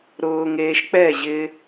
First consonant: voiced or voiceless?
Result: voiced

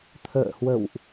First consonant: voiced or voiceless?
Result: voiceless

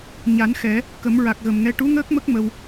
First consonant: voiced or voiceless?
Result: voiced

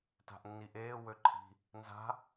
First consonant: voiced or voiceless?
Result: voiceless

